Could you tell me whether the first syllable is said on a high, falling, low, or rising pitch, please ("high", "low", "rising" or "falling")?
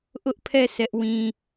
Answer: high